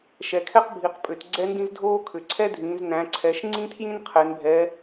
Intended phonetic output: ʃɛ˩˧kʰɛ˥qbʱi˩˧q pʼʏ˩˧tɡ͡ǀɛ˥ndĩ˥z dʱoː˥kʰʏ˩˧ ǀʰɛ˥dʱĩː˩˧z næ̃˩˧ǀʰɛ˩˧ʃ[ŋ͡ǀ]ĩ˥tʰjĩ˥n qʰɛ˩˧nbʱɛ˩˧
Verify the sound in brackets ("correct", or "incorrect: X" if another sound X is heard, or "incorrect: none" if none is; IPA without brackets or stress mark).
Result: correct